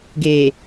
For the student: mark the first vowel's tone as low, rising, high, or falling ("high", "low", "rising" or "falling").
low